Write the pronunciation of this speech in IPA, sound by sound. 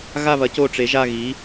ɣa˥˧βɐ˨˥ co˥˧ʈ͡ʂe˨˥ʒa˥˧ɣi˨˥

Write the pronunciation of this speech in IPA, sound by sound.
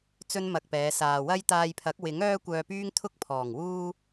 t͡sɵ˥nmɐ˧k̚pɛː˨˧ saː˨wɐ˥j t̪aː˧jpʰɐ˨˥k̚wɪ˨˥ŋ œː˥kʷœː˧pyː˥ŋ t̪ʰʊ˥k̚pʰɔː˨˩ŋ wuː˧

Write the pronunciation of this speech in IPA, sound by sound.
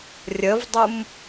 rʲəvdˤum

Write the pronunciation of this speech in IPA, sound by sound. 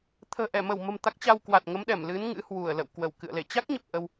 t̪ʰə̤ː˨˩ʔɛ˧˩mə˧˩wmə̤˨˩m t̪a˦˥k̚t͡ɕa˧w kwa˨˩t̚ŋə˨˦mɗɛ˧˩m lɨ˨˦n ŋɨ̰˧˥hwu˧˩ə̯lə̰˧˨w kwə˧˩wkɨ̰˧˨ə̯le˧˩ t͡ɕa˦˥k̚ɲə˨˩p̚ ʔə˧w

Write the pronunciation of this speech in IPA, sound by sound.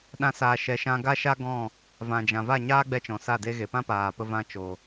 ɗã˧saː˨ʃɛ˨ʃã˧ ɡa˦ʃa˦ ɡɔ̃˦˨ | vã˨d͡ʒã˨ va˦˨ɲaː˦ɡ͡bɛ˧ t͡ʃɔ̃˨sa˦˨de˦ɣe˨ pã˦paː˨pə˧ vã˧t͡ʃo˨

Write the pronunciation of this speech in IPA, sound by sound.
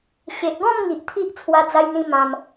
ɕe˨ʔɡɔ̃˥˧mŋi˨ʔ t̪ʰi˦ʔ t͡sʰwa˧d͡za˧jn̪ĩ˧ mã˧m

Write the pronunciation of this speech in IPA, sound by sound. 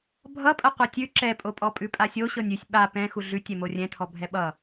bʱʌpʼɐ qʷɤtʲʉ ǁɛpʼopʼɔ pʼʉpʼasʲo ɕɤnʲʉsʲ ɓa pɛ̃ xuɮʉ tʲɛmorʲɛ̃tʰɔ bʱɛɓʌ

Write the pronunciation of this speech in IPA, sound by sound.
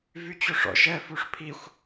vyt͡ɕoʂɔ̰ʃ ɛ fuʂpʰixʷ

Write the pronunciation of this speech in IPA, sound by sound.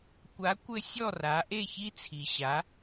kʷa˩˥kʷɘ˧ sʲɔ˥˩ra˩˥ʔe˥˩ çi˥t͡sʰi˩ɕa˩˥

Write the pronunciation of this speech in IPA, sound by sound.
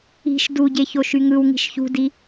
i̤ʃ duɟe çoʃyŋɯwŋi̤ʃ çṳdi

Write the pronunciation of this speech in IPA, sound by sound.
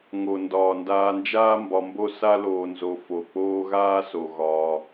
ŋo˩ ndɒː˩ndaː˨nd͡ʒaː˦ mbɒ˨mbo˦ sa˦loː˨nzo˨ fo˩k͡poː˦ɣaː˥so˩ ɣɒː˩

